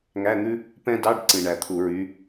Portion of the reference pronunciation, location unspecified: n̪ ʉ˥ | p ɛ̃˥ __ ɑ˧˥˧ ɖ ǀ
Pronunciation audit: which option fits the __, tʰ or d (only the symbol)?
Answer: d